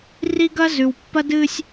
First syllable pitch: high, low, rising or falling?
high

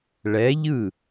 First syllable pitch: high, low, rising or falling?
rising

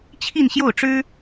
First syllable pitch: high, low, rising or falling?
falling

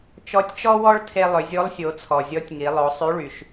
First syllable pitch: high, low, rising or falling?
rising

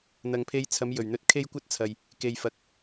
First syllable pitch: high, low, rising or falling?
low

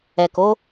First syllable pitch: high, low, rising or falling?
low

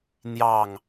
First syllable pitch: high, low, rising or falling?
falling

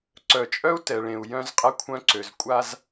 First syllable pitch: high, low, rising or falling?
low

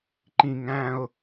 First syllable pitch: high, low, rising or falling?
high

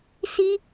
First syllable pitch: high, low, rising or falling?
high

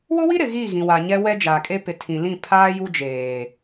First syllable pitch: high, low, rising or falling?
high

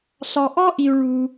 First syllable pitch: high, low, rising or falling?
low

